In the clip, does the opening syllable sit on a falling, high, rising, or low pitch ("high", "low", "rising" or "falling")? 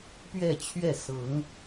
falling